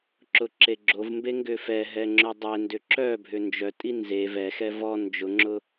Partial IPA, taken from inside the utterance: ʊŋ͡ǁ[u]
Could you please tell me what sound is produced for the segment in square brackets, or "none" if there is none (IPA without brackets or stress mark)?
ʊ